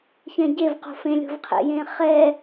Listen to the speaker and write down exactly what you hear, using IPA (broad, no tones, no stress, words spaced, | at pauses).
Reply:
çɛ̃ɟevqo̤ fẽlʲo̤vqʰḛjẽː χɛ